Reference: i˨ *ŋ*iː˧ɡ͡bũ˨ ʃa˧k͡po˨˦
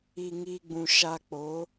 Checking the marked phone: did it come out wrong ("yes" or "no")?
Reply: no